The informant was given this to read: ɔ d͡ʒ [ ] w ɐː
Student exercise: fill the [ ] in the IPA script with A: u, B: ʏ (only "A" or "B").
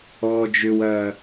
B